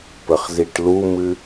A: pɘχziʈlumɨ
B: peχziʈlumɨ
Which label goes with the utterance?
A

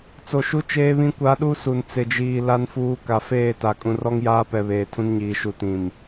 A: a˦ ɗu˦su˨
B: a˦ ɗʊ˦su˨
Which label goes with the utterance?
A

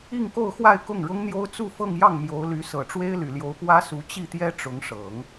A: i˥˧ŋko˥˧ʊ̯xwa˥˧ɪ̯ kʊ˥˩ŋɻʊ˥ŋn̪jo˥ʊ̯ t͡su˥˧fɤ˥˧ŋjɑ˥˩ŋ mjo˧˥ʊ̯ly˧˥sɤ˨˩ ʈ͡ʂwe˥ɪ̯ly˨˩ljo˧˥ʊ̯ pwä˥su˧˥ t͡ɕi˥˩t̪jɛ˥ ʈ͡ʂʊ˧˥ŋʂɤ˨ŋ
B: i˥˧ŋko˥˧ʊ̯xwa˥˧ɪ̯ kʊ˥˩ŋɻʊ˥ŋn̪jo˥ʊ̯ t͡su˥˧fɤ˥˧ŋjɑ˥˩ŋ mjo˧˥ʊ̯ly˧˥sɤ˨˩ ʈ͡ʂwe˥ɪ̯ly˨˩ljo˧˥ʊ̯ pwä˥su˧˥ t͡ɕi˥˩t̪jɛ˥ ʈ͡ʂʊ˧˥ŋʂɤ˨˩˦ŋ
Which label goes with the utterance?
B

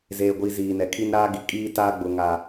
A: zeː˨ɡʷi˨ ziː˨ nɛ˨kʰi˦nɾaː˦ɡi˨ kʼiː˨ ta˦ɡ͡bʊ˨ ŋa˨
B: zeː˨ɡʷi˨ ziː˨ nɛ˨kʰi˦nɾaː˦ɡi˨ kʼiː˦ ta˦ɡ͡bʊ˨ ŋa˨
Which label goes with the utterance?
B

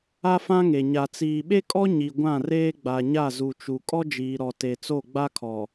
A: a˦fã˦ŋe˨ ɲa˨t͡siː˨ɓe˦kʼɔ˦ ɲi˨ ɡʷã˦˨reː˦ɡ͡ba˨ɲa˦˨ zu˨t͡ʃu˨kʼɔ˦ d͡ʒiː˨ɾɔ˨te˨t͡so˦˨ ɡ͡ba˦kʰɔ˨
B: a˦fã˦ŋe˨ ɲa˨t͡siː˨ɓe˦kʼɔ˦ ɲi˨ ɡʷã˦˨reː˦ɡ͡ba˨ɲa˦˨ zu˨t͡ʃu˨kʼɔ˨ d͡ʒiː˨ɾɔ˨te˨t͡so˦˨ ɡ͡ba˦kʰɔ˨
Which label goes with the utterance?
A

